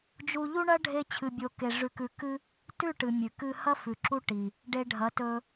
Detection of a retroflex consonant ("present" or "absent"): present